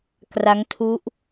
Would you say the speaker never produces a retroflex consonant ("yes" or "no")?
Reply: yes